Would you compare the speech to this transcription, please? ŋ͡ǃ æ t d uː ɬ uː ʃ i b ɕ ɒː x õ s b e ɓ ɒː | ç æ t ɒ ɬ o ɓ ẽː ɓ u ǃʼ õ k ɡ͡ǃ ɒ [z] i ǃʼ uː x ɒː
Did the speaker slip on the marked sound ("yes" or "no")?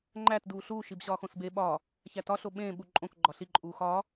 yes